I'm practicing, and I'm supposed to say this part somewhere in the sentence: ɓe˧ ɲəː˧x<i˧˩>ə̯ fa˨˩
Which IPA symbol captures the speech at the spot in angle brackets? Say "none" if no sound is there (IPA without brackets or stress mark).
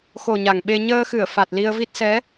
ɨ˧˩